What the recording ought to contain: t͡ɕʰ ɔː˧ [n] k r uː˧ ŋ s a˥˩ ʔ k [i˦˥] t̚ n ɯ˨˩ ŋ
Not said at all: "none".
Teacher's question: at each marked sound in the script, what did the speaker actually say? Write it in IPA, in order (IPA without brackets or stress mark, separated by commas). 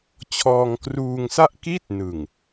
ŋ, i˥˩